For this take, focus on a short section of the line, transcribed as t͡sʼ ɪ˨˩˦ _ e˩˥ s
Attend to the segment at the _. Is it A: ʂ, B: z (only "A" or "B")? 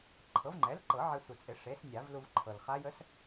A